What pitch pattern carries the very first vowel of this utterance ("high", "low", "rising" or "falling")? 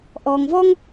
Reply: low